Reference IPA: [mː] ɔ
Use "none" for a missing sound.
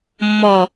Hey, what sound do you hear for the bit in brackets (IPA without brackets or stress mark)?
mː